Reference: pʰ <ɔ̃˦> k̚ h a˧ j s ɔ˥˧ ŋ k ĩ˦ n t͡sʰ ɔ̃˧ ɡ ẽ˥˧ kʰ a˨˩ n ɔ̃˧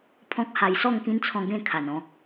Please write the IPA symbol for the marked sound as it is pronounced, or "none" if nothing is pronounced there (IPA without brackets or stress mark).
ɔ̃˦